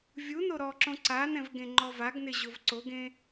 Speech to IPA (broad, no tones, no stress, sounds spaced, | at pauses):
vʲ u n o ɾ ɔ ǁ õ ǀ a n ɛ̃ v ɡ ẽ ŋ͡ǃ ɔ v a ɡ n ɪ ʑ ʊ v ǀ o ɡ ẽ